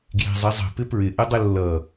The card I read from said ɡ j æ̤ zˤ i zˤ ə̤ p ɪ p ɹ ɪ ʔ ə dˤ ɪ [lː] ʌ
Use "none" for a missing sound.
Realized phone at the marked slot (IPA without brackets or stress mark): lː